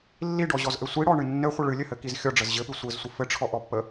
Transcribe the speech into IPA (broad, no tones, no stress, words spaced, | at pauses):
lːiɖɔʑɔzʔɘ sʷiɽɔɳɨ nːɘχʷə ɭɨlʲɘhɘkiz xʲɔɖ͡ʐəz ʑɘpɨ sʷɘzsʷə fɘʈ͡ʂʰɔʔɔpːə